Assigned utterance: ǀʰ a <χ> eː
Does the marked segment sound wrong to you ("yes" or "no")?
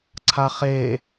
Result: no